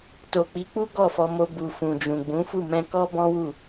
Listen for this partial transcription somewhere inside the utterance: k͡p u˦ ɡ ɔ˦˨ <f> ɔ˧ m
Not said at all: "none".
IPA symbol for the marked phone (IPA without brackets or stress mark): f